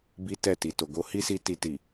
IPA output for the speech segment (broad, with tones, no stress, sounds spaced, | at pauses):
b i˦ t ɛ˦˨ t i˨ t o˨ ɡ o˧ h i˦ s i˧ t i˧ t i˨